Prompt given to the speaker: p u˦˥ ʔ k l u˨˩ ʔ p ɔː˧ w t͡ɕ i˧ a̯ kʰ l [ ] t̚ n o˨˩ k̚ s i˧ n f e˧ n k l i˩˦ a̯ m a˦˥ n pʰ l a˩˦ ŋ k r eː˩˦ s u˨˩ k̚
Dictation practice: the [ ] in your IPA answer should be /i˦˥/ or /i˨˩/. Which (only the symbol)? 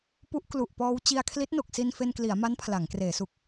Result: i˦˥